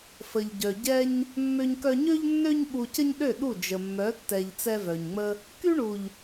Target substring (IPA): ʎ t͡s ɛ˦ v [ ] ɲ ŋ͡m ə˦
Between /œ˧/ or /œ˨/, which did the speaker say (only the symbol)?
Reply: œ˨